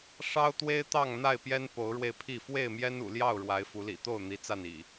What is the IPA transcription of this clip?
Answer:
ʂ ɑ˦ ʊ̯ t̪ w e˦ ɪ̯ t̪ ɑ˥˨ ŋ n̪ a˥˨ ɪ̯ p j ɛ˦ n p o˨˦ ʊ̯ ɻ w e˧ ɪ̯ pʰ i˥˨ f w e˥˨ ɪ̯ m j ɛ˦ n ṵ˨˩ l j ɑ˥˨ ʊ̯ ɻ w a˨˦ ɪ̯ f u˨˦ l ḭ˨˩ t̪ o˥˨ ʊ̯ n̪ i˨˦ t͡s a˥˨ n ḭ˨˩

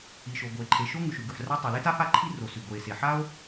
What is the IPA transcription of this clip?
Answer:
i˩ ʃ o˩ ɡ o˩ e̯ ǃʰ e˩ ʃ o˥ ŋ ʉ˩ ʃ ʉ˩ ɡ ʉ˩ ħ r a˥ tˤ i˩ l e˥ t a˥ f a˥ ǃʰ i˥ r o˩ s ʉ˩ ɡ o˩ e̯ s e˩ ħ a˥ o̯

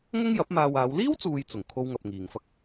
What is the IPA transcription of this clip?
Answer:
ŋ ɐ˥ ŋ j ɐ˨˥ p̚ m aː˧ w aː˨˧ w l iː˥ w t͡s uː˨ j t͡s ʊ˨˩ ŋ kʰ o˥ w ŋ ɐ˧ p̚ ŋ iː˨ ŋ f ɐ˥ k̚

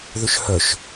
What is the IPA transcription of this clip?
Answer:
ð ʏ ʃ h œ ʃ

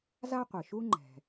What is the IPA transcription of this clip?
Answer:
z a˥ qʷ ɨ˩ ʃ u˥ ŋ͡ǃ ɛ̤˩

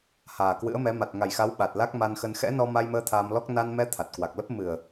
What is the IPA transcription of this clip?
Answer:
h aː˨˩ k w ɨ̰˧˥ ə̯ m ɛ˨˦ m a˨˩ t̚ ŋ a˨˩ j x a˨˦ w ɓ a˨˩ t̚ l a˦˥ k̚ m a˧ n x ə˧ n x ɛ̰˧˥ n ɔ˧ m a˧ j m əː˧ t̪ʰ aː˧ m l ɔ˦˥ k̚ n a˧ n m ɛ˧ t̪ʰ a˨˩ t̚ k w a˨˩ k̚ l ə˦˥ p̚ m ɨ˨˩ ə̯

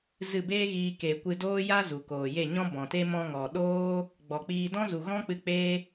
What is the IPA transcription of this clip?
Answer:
z ɨ˦˨ b eː˦ ɣ iː˧ k e˨ kʷ ɨ˧ d oː˦ j a˦ z u˨ k oː˨ j e˦˨ ɲ ɔ̃˦ b ɔ̃˨ t e˦ m ɔ̃˧ ŋ ɔ˨ ɗ oː˦ | ɡ͡b ɔ˨ k͡p iː˧ d ɔ̃˦ z u˨ ɣ ɔ̃˦ k͡p ɨ˧ k͡p e˦

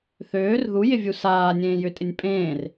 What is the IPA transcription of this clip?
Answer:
θ øː r ð u j ɪ vʲ u s aː nʲ ẽː j ʏ tʼ ɪ nʲ pʼ ẽː r

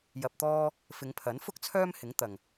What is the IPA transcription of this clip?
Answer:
j ɐ˧ p̚ t̪ ɔː˥ | f ɪ˨˧ ŋ pʰ ɐ˨˥ n f ʊ˥ k̚ t͡sʰ œː˥ m h ɪ˨˥ ŋ t̪ ɐ˨ ŋ

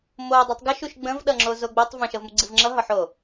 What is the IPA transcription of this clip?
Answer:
m o dˤ u tˤ ɡ ə ʃ u ʃ ɡ͡b ə̃ v ɗ ʌ ŋ͡ǁ o z o ɡ͡b o tˤ v ə̃ ʃ ʌ v m u ɡ͡ǀ ɨ v ŋ͡ǁ ʌ ɦ ɒ ħ o

